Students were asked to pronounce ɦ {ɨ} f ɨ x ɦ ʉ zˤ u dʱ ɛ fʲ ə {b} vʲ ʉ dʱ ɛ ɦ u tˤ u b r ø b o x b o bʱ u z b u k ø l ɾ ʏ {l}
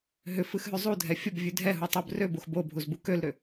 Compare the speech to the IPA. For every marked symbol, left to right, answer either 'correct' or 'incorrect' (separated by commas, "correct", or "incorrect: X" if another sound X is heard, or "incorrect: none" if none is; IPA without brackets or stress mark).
incorrect: ʏ, correct, incorrect: none